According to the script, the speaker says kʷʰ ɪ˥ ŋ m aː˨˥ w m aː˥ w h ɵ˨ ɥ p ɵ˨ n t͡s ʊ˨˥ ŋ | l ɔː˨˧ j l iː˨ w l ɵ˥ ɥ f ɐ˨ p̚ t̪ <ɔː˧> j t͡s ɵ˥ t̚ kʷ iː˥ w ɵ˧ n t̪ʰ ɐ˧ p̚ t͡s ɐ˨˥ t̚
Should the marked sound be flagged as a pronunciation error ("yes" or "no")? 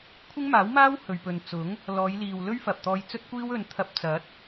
no